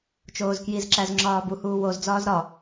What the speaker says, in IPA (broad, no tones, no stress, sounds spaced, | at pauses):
t͡ʃ oː z k j i z ǁ æ z ŋ͡ǁ ɒː b u h uː w o z d͡z ɒː z ɾ ɒ